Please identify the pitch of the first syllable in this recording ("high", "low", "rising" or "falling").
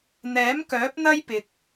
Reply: rising